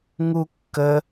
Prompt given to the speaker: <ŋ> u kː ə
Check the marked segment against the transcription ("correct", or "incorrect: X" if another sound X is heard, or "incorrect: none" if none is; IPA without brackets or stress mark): correct